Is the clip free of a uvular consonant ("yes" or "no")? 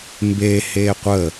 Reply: no